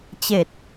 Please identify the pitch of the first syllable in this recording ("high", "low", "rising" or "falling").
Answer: low